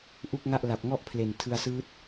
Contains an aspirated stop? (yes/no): yes